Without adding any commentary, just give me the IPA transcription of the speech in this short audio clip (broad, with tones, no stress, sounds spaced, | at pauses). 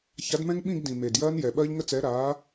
ç a˨˥ d m ɛ̃˦˥ ŋ ɓ ĩ˥˧ ɡ d ĩ˨˩ m e˨˩ d j ɐː˦˥ n j ɛ˨˩ ɓ ɐː˦˥ ʎ ŋ ə˥˧ t͡s ɛ˨˥ ɾ aː˨˥